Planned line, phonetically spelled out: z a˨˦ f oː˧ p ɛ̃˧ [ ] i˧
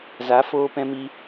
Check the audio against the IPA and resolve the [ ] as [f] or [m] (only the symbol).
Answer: m